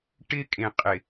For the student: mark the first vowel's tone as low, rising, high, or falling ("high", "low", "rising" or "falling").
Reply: high